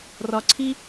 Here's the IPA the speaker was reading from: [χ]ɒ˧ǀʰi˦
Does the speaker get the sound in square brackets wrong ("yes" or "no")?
yes